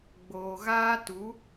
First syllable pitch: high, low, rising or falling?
low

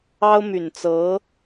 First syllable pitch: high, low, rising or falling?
high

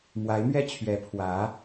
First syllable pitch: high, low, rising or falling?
rising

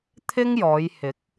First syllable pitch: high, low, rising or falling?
high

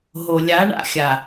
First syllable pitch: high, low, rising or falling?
low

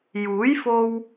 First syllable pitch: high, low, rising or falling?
rising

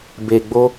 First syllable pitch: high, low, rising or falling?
low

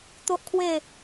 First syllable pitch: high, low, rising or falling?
high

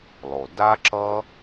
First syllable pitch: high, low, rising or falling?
low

